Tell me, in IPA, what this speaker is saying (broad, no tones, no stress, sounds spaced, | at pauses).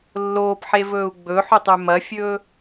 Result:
lː oː p ħ e v ɵː u̯ ɡ͡b ɵ ħ ʉ tˤ ʉ m ɐ fʲ ɵː